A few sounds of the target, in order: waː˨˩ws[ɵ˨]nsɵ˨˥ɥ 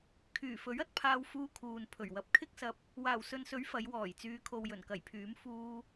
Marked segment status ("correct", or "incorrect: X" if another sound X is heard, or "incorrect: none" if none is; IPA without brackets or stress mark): correct